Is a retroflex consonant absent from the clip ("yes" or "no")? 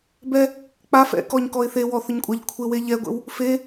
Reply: yes